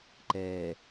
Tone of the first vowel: low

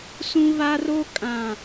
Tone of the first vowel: high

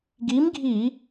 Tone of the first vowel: rising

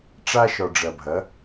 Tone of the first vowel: high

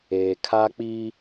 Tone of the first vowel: low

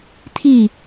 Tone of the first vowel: falling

